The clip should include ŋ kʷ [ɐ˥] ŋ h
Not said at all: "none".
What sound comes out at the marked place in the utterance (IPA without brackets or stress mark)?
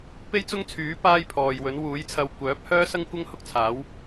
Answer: ɐ˥